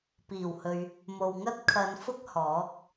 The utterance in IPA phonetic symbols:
p iː˨˩ w h ɵ˨ ɥ | m o˨ w ŋ ɐ˥ t̚ kʰ ɐ˨˧ n f ʊ˥ k̚ h ɔː˨˥ k̚

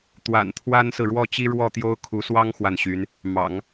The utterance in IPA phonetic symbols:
t̪ w a̰˨˩ n t̪ʰ w a˥ n s ɹ̩˨ ɻ w ɔ˥˩ t͡ɕ i˥ ɻ w ɔ˥˩ t̪ j o˥ ʊ̯ kʰ u˧˥ s w ɑ˥ ŋ x w a˥˩ n ɕ y˧˥ n | m ɑ̰˨˩˦ ŋ

